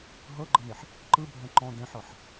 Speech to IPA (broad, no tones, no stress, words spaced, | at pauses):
ɦɤɡ͡ǃɤneħ | ǃɯbʱɛ̃ ǃɔ̃ dɛ̃ħɤħ